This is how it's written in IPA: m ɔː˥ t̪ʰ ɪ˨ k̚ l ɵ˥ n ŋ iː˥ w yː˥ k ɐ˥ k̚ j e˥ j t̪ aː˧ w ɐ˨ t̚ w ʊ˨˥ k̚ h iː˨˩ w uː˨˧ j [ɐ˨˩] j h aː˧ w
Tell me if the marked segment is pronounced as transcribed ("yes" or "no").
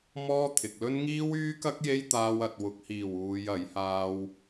no